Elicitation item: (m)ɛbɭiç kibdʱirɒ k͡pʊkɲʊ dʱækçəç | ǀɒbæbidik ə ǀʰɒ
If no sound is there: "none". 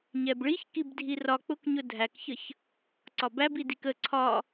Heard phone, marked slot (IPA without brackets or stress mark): ɲ